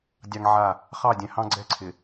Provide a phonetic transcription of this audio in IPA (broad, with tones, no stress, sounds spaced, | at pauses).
dʲ ɑ˦ ŋ ʕ a˦˨ | χ ɑ˦˨ dʲ ɛ̃˨ h ɑ̃˦ ɡ͡ǀ ɛ˦ ǀʰ ɪ˨